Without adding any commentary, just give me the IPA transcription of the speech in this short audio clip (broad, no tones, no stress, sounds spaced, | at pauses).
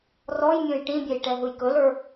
r ɔ j mʲ õ j ʈ ĩ bʲ ɛ j ʈ ɛ ɦ ɯ j k ɵ l ə˞